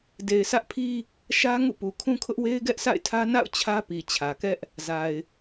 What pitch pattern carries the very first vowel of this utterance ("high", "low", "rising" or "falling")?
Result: low